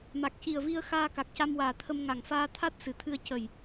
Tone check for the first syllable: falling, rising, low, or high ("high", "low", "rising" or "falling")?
low